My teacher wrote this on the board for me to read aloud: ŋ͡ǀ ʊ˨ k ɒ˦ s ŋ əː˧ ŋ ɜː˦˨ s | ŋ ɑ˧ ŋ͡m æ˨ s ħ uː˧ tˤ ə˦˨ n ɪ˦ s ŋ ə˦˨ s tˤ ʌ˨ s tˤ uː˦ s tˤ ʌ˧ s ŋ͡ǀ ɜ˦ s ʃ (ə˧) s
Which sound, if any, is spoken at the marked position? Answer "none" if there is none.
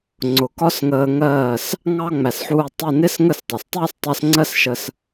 ə˧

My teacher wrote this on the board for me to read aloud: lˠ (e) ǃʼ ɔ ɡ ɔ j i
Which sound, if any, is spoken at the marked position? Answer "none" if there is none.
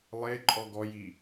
e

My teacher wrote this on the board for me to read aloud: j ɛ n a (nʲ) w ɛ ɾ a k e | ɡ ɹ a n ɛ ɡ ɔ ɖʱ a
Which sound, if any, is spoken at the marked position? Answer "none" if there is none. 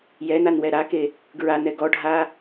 n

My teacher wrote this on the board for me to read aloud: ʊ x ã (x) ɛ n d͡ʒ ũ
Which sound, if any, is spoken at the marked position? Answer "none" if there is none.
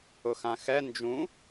x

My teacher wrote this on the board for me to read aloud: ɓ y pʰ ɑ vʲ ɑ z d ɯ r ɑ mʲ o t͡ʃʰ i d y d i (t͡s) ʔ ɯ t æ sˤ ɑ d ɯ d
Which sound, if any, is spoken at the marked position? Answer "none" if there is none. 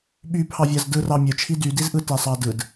z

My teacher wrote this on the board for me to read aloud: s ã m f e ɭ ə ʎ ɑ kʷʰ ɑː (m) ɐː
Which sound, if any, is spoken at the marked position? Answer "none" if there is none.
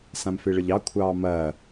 m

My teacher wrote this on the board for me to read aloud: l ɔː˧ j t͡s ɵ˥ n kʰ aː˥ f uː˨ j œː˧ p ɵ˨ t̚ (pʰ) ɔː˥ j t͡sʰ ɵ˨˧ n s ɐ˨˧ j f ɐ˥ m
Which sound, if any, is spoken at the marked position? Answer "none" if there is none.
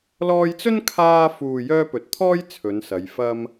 t̪ʰ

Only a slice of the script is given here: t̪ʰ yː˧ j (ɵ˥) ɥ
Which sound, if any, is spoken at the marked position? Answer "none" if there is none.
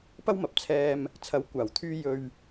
ɵ˧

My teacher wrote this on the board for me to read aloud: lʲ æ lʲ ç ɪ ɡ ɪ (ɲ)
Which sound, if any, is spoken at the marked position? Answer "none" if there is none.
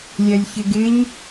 ɲ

